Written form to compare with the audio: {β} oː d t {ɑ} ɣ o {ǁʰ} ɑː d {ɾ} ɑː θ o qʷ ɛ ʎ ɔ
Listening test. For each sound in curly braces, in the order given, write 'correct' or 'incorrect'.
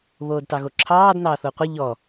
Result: correct, correct, correct, incorrect

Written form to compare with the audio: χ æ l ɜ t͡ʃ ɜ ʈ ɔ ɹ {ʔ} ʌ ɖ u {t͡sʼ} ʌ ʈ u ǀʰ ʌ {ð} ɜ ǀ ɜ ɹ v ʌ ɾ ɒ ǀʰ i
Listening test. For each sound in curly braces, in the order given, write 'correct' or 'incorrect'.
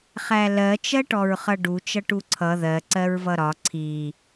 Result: incorrect, incorrect, correct

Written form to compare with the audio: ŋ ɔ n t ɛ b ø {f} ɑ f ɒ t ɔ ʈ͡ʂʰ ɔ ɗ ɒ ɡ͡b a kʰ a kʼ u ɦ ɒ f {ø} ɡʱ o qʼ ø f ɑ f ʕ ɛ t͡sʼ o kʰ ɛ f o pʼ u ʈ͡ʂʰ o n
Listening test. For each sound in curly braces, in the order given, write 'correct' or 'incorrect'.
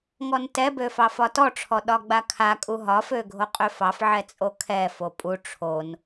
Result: correct, correct

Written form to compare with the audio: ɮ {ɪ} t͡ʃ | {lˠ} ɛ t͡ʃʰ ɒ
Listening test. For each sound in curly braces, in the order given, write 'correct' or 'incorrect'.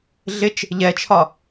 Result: correct, incorrect

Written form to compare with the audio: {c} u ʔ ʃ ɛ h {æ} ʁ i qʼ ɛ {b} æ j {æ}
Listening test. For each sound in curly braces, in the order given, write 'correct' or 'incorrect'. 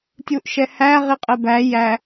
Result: incorrect, correct, correct, correct

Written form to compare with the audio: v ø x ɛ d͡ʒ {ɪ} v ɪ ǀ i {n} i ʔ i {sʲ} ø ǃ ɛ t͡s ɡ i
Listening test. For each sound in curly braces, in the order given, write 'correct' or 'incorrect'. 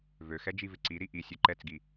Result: incorrect, incorrect, correct

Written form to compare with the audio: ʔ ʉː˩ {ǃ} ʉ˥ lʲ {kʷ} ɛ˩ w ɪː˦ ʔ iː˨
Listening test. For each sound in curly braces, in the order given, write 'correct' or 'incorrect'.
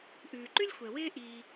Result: correct, incorrect

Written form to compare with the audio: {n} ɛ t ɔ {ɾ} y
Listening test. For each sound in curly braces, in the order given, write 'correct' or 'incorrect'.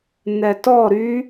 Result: correct, correct

